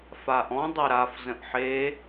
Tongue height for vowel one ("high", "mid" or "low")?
low